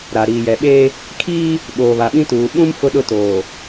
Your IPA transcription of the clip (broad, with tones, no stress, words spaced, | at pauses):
ɾa˨ ɾiː˨jɛ˨ɓeː˦ | kʰiː˦ | ɓoː˨βa˨ɓĩ˦tuː˨ ɓũ˦m fʊ˦ɗʊ˦ toː˨